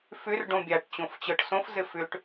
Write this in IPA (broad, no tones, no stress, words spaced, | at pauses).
fʏr ɖõbʲaʈ t͡ɕõft͡ɕɤʈsõf zɘfʏʈ